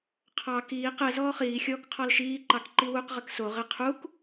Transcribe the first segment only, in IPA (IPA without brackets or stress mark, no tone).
qʰ